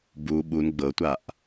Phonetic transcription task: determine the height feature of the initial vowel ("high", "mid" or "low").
high